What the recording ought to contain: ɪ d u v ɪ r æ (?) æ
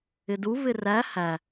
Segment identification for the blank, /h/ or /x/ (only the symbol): h